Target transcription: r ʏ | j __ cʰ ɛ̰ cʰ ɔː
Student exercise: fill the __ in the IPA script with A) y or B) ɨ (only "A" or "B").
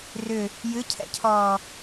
B